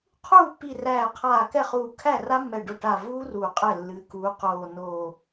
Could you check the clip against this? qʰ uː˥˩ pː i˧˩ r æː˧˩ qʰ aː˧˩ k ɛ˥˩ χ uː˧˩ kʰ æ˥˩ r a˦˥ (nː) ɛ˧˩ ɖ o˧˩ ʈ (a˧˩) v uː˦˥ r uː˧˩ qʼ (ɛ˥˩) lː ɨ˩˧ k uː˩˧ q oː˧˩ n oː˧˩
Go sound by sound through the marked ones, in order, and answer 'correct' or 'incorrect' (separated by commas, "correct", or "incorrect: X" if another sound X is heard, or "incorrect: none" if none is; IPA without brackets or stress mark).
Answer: incorrect: mː, correct, correct